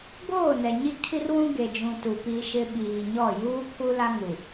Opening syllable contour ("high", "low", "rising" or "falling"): falling